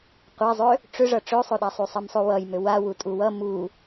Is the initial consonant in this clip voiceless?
yes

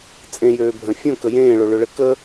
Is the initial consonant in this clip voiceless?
yes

